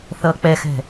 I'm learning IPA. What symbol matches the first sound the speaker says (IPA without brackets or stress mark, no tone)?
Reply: θ